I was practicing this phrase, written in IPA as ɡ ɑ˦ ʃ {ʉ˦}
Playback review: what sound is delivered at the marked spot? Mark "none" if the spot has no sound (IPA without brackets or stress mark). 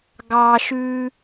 ʉ˦